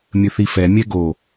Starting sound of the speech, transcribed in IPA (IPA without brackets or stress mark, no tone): mʲ